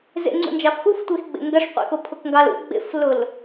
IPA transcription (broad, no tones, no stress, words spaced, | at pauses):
zḛŋ͡ǀṵnd͡ʒɑf xuftʷexɡ͡bḛ ŋɡɐʂqʷḛxʊ pʰʊkŋɡɑlṵ ɡ͡bḛflʊl